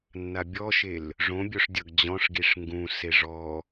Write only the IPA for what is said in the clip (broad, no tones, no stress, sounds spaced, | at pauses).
nː a bʲ ɔ ʃ e l | ʐ õ bʲ o ʂ dʲ ʌ ɡ d͡ʑ ɔ̃ ʂ ɡ i ʂ ŋ ɡ ũ s e ʐ ɔ